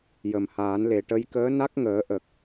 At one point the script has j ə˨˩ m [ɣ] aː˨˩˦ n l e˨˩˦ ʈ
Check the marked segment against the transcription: incorrect: h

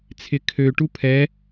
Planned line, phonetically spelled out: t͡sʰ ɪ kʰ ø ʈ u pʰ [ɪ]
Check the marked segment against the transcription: incorrect: ɛ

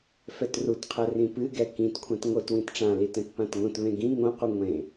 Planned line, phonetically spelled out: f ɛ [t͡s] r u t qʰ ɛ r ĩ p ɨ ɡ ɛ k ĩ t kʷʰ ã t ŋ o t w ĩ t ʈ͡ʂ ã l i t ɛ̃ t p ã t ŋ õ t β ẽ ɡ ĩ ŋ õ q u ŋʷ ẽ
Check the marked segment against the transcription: incorrect: t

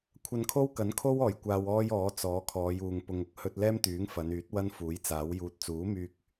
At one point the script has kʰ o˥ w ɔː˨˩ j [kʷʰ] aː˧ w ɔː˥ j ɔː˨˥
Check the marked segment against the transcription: incorrect: kʷ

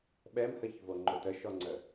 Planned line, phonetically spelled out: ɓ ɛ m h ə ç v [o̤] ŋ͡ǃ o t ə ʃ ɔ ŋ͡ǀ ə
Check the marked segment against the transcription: incorrect: o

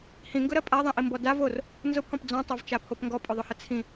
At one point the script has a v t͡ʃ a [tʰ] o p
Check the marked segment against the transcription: incorrect: pʰ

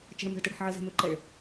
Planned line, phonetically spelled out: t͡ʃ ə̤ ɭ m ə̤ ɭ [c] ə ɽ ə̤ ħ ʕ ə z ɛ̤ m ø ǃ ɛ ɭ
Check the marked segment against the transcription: incorrect: t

